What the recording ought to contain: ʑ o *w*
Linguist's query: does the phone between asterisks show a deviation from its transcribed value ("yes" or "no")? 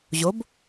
yes